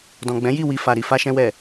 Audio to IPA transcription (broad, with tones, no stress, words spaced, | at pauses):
dɔ̃˨ɡ͡bɛ̃˨˦ji˦˨ wi˧fa˨ɾi˧ fa˧ʃɛ̃˧wɛ˨